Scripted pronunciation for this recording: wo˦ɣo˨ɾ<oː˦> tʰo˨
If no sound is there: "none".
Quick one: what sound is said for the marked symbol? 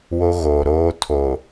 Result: oː˦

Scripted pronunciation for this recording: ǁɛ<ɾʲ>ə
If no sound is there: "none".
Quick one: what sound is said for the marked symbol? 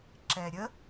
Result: ɾʲ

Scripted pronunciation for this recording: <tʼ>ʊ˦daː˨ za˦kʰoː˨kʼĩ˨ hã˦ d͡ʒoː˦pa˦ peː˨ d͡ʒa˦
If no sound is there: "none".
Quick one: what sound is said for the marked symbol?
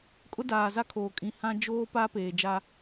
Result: kʼ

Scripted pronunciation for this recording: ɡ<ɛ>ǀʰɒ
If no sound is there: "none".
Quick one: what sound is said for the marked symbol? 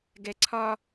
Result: ɛ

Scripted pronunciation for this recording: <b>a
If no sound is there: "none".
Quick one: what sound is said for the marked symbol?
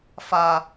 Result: f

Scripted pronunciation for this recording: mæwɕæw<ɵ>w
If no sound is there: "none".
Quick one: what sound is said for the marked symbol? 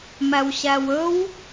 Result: ɵ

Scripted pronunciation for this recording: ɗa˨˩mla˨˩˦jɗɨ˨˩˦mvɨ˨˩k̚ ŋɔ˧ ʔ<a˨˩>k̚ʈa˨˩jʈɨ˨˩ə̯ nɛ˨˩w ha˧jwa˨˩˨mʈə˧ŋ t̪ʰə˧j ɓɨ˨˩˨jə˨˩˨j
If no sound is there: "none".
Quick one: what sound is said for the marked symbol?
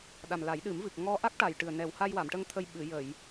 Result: a˦˥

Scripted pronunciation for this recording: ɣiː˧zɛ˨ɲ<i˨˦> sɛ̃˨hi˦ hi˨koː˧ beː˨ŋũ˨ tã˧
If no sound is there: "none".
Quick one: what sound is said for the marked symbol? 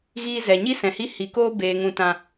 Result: i˦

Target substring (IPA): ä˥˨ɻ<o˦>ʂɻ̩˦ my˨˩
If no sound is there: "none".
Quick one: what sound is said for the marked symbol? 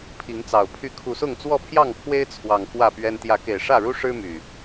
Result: u˦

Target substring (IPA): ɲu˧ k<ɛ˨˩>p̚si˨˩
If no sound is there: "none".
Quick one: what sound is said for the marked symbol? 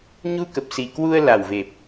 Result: ə˨˩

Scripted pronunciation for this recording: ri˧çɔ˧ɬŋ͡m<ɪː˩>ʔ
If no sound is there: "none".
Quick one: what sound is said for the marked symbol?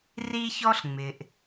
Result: ɪː˩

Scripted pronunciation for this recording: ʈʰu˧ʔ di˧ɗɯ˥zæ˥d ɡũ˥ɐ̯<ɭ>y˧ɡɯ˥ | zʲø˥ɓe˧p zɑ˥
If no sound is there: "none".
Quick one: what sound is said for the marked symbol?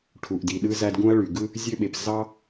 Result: ɭ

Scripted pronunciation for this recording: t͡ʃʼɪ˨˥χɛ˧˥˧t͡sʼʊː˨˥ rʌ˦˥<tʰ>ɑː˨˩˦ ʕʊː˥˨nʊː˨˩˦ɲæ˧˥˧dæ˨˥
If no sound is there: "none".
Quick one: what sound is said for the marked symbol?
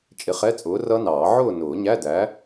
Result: n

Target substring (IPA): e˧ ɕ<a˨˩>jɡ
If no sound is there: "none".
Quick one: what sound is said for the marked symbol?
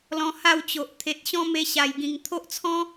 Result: a˨˩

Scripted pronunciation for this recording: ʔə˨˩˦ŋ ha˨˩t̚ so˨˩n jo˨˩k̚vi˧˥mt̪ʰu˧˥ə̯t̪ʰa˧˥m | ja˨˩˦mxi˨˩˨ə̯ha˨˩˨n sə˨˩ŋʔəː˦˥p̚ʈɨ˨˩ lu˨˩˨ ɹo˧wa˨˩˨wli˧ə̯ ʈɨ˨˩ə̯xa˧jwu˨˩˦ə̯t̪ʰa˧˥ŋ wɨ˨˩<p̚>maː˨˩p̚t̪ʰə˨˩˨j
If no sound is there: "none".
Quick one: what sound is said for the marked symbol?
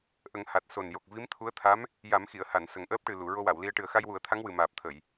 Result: none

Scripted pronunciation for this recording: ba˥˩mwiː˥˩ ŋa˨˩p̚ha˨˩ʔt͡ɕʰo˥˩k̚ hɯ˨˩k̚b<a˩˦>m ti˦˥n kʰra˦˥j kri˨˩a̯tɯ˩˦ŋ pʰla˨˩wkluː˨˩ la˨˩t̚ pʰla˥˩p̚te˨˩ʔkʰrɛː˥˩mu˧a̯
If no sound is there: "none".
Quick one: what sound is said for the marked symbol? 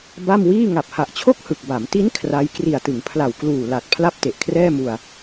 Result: a˩˦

